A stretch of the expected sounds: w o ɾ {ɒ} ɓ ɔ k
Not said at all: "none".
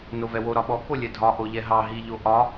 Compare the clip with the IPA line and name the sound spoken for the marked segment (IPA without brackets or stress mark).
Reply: ɒ